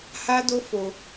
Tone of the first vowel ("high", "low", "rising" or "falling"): high